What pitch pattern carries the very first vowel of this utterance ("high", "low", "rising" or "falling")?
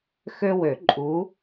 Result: high